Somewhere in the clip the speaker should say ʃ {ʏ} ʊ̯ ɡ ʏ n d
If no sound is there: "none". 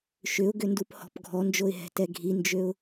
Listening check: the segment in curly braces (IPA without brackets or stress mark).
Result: ʏ